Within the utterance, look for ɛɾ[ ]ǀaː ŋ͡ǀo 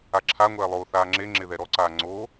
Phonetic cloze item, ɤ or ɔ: ɔ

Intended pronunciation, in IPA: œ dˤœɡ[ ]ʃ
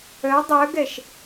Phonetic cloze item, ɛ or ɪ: ɛ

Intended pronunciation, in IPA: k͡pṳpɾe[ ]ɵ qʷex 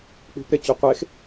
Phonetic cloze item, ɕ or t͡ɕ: t͡ɕ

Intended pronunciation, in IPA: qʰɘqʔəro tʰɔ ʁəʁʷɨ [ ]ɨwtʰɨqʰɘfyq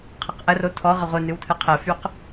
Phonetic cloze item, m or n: n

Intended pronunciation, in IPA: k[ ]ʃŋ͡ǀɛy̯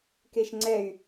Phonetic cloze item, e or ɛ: e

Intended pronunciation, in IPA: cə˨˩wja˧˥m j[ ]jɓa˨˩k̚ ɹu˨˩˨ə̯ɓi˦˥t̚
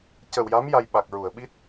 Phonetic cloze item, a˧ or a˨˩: a˧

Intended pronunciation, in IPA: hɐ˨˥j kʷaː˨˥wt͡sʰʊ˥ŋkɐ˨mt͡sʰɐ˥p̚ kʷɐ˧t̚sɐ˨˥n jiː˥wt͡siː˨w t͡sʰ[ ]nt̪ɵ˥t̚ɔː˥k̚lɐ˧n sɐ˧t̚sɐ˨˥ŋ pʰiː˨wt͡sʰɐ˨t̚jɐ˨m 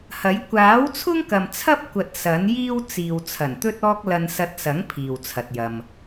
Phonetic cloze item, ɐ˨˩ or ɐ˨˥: ɐ˨˩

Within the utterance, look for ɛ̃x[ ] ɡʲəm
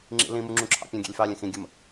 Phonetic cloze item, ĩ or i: ĩ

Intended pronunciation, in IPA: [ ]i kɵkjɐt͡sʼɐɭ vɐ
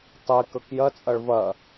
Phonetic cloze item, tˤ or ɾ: tˤ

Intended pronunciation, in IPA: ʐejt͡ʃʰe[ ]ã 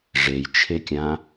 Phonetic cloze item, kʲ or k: kʲ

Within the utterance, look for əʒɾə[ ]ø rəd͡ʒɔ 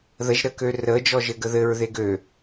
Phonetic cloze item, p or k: k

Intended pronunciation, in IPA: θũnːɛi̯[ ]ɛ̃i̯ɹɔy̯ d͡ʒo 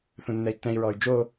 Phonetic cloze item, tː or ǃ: tː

